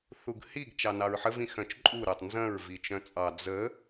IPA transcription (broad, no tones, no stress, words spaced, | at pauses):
θuɡhiɡ t͡ʃɑnɑɹħəv ĩxœ̃t͡ʃǃʼu ɾətˤ nzɐ̃ɹ vit͡ʃœ̃t͡sʼɑ d͡zə